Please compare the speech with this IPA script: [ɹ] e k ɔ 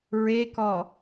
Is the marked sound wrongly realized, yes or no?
no